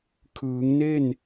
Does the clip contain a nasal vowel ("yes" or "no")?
no